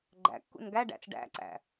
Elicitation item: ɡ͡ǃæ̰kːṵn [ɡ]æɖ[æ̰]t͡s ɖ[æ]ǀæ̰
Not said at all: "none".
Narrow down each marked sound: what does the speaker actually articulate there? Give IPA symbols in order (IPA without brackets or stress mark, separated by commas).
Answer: ɡ, æ̰, æ̰